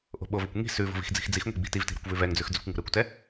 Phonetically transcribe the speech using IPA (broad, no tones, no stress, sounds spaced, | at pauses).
ʔ o̤ ɓ o v ɘ kʷ ŋ i̤ s ʉ v o̤ v i̤ x d͡z i̤ x d͡z i x ŋʷ i̤ ɡ͡b i̤ t i v t i̤ ɾ o̤ kʷ v ʉ v ɛ ŋ d͡z ʉ x d͡z ʉ kʷ ŋ o̤ ɾ ɘ kʷ t ɛ